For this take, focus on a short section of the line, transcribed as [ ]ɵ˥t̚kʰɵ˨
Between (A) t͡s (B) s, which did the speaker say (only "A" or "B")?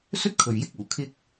B